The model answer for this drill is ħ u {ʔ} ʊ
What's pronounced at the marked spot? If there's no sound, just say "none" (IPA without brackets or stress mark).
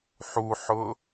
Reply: ħ